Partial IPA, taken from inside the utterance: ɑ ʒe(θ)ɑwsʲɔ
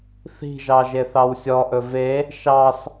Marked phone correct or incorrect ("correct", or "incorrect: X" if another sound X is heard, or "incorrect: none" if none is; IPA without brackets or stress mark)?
correct